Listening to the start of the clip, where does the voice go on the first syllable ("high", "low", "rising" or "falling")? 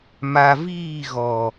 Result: low